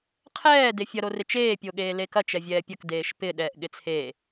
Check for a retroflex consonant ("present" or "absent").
absent